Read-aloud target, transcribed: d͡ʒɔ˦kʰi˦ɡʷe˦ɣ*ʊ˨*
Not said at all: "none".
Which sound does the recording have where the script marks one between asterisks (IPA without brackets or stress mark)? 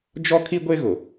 ʊ˨